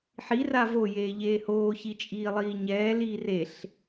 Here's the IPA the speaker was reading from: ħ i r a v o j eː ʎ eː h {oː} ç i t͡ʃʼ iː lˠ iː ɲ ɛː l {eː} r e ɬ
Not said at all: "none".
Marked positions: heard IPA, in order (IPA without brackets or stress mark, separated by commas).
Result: oː, iː